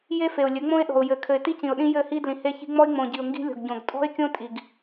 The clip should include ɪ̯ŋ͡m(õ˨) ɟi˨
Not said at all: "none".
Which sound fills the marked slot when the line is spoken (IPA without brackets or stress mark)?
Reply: õ˨